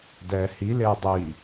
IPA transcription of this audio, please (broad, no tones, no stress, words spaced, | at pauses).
dɛːhi leʊ̯dˤiː